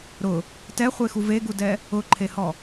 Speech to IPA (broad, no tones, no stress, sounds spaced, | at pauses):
ɾ ʊ | t ɛ χʷ e x u v e ɡ u d ɛ | ʊ ǃʰ e h ɔ